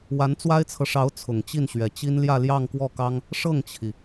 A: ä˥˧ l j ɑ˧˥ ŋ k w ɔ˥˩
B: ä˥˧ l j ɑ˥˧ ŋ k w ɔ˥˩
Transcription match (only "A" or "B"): B